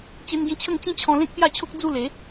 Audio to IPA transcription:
t͡ɕ e˧ n ɡ ĩ˧ t͡ɕʰ ə˥˧ ŋ t͡ɕ ĩ˦ t͡ɕʰ ɔ̃˧ l ẽ˦ k̚ p j a˥˧ t͡ɕʰ o˦ k̚ d͡z u˥˧ l e˨˦

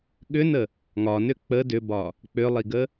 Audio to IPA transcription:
ɠ ʏ n ə | ŋ ɒ n ʏ k͡p ə d ʏ b ɒ | k͡p ʏ lˠ i ɡ ə

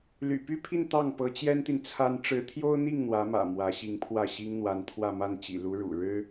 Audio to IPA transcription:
l y̰˨˩ p y˥˧ pʰ i˥˧ n t̪ ɑ˥˩ ŋ p ɤ˧˥ t͡ɕ j ɛ˥ n t̪ i˨ n t͡sʰ a˥ n ʈ͡ʂ ɻ̩˧˥ t̪ʰ j o˥ ʊ̯ n̪ i˥˩ ŋ n̪ w ä˧˥ m ä̰˨˩ m w ä˧˥ ɕ i˧˥ ŋ pʰ w ä˥˩ ɕ i˥ ŋ n̪ w a˧˥ n t̪ʰ w ä˥˧ m a˥˩ n t͡ɕ ḭ˨˩ l u˧˥ ɻ ṵ˨˩ ɻ ɻ̩˥

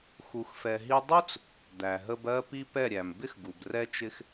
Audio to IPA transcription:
x u˧ x f ɛ˧ ɦ i˦ dˤ u˦ t͡s | d̪ æ˨ ɦ ə˧ b ɜ˦ p i˦ p ɛ˦˨ ɾʲ æ˨ m b ɪ˦ x ɡ u˨ b r ɛ˧ t͡ʃ ɪ˧ x

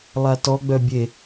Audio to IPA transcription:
lˠ a t ɔ ɡ͡b œ bʲ e

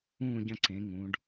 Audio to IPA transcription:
ũː˦˨ ɟ ɐ̃˦˨ ǀ ẽ˩˧ ŋ ũː˩˧ ɖ

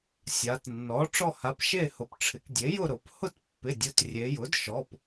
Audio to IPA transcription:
sʲ a˩˧ t nː ɔ˩˥ ʈ͡ʂ ɔ˥˨ h a˩˥ p ʃ e˥˨ h ʊ˩˥ p ʈ͡ʂʰ ɪ˩˧ k dʲ e˩˥ j ʊ˥˨ ɾ ʊ˩˧ p h ʊ˥˨ t pː ɪ˩˧˩ dʲ ʊ˩˧˩ t rʲ e˩˧ j ʊ˩˥ d ʃ ɔ˩˧˩ p

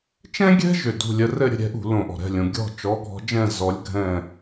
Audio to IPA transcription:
t͡ʃ ɛ̃˥ ɡʲ ɛ̤˥ ʒ ʏ˧˩ d ṳ˥˧ lʲ ə˧˥ r ɘ˥˧ ɾʲ ə̤˥˧ ɾʲ ɛ̤˧˥ ʔ ṳ˧˩˧ l õ˧˩ ʔ ɔ̤˧˩ ɾ ɛ̤˥˧ lʲ õ˩˧ ɡʲ ɔ̤˥˧ t͡ʃ ɔ˧˥ ɡʱ ɔ̤˧˥ d͡ʒ ɛ̃˥˧ z ɔ˧˥ lʲ ɡʱ ɛ̃˥˧

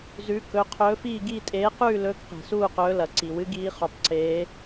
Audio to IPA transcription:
z ʉ˨˦ k ɵ˨˦ qʰ ɵː˨˦ f iː˦˨ ɡ iː˦˨ tʼ eː˨˦ q ʉː˦˨ l ɵː˨˦ k q e̤˩ s uː˦˨ q ɵː˨˦ l ɐ˩ ǀ i˩ w ɨ˨˦ ɡ iː˨˦ χ u˩ tˤ ǀ eː˨˦

